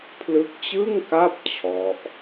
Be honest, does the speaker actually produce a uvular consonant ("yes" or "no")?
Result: no